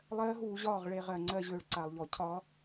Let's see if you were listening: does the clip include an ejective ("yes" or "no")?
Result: no